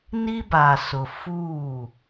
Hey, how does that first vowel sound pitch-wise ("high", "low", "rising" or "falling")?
high